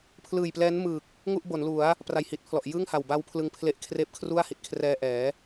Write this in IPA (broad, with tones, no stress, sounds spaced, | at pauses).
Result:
pʰ l ɯː˨˩ j p l ɛː˦˥ n m ɯː˨˩ k̚ | ŋ u˥˩ ʔ b o˩˦ n l u˩˦ a̯ | p r a˨˩ j h i˨˩ t̚ pʰ l ɔ˨˩ ʔ j ɯː˥˩ ŋ h a˨˩ w b a˦˥ w pʰ l ɯ˧ ŋ pʰ l e˦˥ ʔ kʰ r eː˥˩ p̚ kʰ r u˥˩ a̯ h i˨˩ t̚ kʰ r ɛː˧ ʔ ɛː˩˦